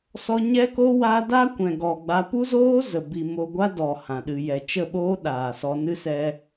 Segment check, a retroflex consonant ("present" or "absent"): absent